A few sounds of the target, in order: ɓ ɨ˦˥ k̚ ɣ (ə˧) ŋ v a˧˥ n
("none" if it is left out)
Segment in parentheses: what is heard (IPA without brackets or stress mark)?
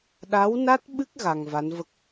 a˧